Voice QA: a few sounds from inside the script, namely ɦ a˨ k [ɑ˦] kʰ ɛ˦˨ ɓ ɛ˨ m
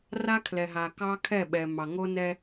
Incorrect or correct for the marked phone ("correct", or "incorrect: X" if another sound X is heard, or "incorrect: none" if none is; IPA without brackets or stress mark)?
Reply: correct